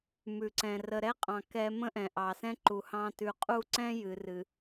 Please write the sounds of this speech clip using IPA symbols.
m ʉ˨ ǀ ɛ̃˨ r ə˨ ɾ ɛ˦ qʼ ɑ̃˨ k ɛ˦ m ə̃˦ ʔ ɛ̃˨ ʔ ɑ˨ s ɛ̃˦ ǃ u˨ h ɑ̃˦ t ʉ˨ qʼ u˦˨ ǀ ɛ̃˦ j ɨ˨ r ɨ˨

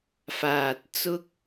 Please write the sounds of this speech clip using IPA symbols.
f aː˨ t̚ t͡s ʊ˥ k̚

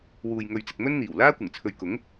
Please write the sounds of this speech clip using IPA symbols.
w uː˨ j ŋ ɵ˨ ɥ t͡s ɪ˨ k̚ m ɵ˥ n n̪ iː˨˩ w l aː˥ kʷ ɪ˨˩ ŋ t͡sʰ ɵ˨ ɥ k ʊ˨˥ ŋ

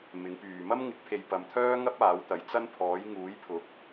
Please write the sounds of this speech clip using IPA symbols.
m ɪ˨˥ ŋ p yː˨ m ɐ˥ m ŋ ɪ˨˥ k̚ pʰ e˨ j p ɐ˨˧ m t̪ʰ œː˥ ŋ ɐ˥ p̚ aː˨˥ w t̪ ɐ˨˥ j t͡s ɐ˥ n pʰ ɔː˨˥ j ŋ uː˨˥ j pʰ ʊ˨˥ k̚

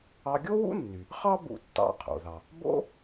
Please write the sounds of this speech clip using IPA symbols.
ɑ˧ ɡʲ o˥ w ṵ˥ nː y˩ | χ ɑ˥ b ṵ˧ tː ɑ̰˧ qʰ o̰˩ ð ɑ˩ | b o̰˥

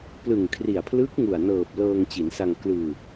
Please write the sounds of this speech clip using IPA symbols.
p l ɯ˨˩ ŋ kʰ r i˨˩ a̯ pʰ l ɯ˦˥ k̚ ŋ u˨˩ a̯ n ɤː˨˩ p̚ l ɤː˧ ŋ t͡ɕ i˩˦ n s a˧ ŋ k l ɯː˧

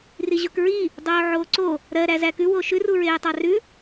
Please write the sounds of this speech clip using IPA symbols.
r i ʑ o k ɹ i | dˤ oː ʕ oː ǀ o | ɾ ɜ ɾ æ z æ k ʉ w o ʃ ʉ r u ɹ eː tˤ ɑ r ʉ

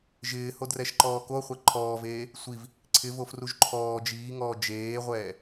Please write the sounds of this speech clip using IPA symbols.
ʒ ɪː h o d r ɛ ʃ ǃ ɔː k o χʷ ɛ ǃʰ ɔː v eː | sʷ i v | ǀʰ ɪ v o f r u ʒ ǃʰ ɔː d͡ʒ iː ŋ ɔː d͡ʒ eː ʁʷ ɛː

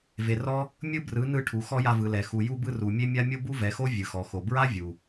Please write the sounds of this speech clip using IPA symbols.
v e˨ r ɔ˦ | mʲ ɯ˦ b r ɯ˨˦ n ɯ˧ ʈʰ u˨ x ɔ˦ j a˧ v ɯ˨ l ɛ˨ x u˨ j u˧ b ɯ˧ r u˨ mʲ e˦ mʲ a˦ mʲ o˦ b u˦ v ɛ˨˦ x o˦ vʲ ɯ˨ x ɔ˨ x o˨ b ɹ a˦ vʲ u˨

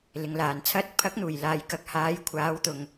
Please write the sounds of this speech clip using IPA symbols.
l ɪ˨˧ ŋ l aː˨ n t͡sʰ ɐ˨˥ t̚ pʰ ɐ˨˥ k̚ n̪ uː˨˩ j l aː˨ j k ɐ˨ k̚ h aː˨˥ j kʷʰ aː˨˥ w t̪ ʊ˨ ŋ

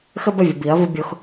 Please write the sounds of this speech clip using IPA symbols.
x ə˦ b ə˦˨ vʲ ə˨ b i˨˦ ɐ̯ v ɯ˦ bʲ o˦ x

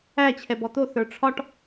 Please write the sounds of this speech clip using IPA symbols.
æ t͡ɕʰ ɛ b ɔ t̪ o θ ə˞ ʈ͡ʂʰ ɒ ʈ

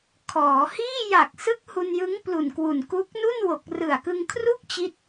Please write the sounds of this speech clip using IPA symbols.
kʰ ɔː˩˦ h iː˥˩ j a˨˩ k̚ s ɯ˦˥ k̚ h u˧ n j ɯ˦˥ ŋ p l u˨˩ n k w u˨˩ n k u˦˥ k̚ n u˥˩ n w o˨˩ k̚ r ɯ˨˩ a̯ k ɯ˧ ŋ kʰ r u˥˩ k̚ t͡ɕ i˦˥ t̚

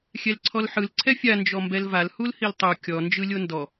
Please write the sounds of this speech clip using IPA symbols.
xʲ ɛ l ǀʰ ɔ l ħ ɯ l ǀʰ ɛ fʲ a n d͡ʒ ɔ m b ɛ l v a l h u l h i l tˤ u kʲ ɔ n d͡ʒ ɯ lʲ o n d ɔ

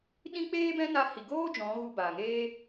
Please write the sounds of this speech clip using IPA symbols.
ɗ ĩ˦ k͡p eː˦ b ɛ̃˦ n a˧ h i˨ ɡ oː˦ d͡ʒ ɔ̃˨˦ ɣ u˧ b aː˨ ŋ eː˦

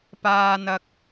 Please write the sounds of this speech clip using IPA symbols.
p aː˧ n̪ ɐ˧ k̚

